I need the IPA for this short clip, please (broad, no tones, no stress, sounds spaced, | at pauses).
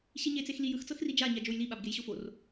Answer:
ɕ i ɲ e t͡s e x l i j ɯ x t͡s ɤ x r i d͡ʒ a ɲ a d͡ʒ o j l i ɓ a b ɡ e j ɕ o f o r